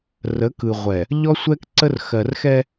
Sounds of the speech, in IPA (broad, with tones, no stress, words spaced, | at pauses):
rə˨˦k ɯ˨ʁʷɛ˨ | ʎɔ˦sʷɛ˦kǀə˦r xɜ˨rxɛ˦